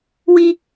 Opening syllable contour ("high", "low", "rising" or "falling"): high